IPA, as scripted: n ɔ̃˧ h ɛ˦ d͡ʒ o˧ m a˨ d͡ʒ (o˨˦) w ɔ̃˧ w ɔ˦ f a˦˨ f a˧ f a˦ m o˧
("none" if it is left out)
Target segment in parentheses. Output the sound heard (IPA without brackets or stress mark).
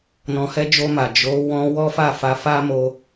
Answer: o˨˦